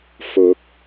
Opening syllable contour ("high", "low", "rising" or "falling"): rising